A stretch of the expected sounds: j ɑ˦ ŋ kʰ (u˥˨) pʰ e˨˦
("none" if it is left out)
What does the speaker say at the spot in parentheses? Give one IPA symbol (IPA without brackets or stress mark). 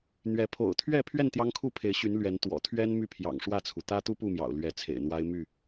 u˥˨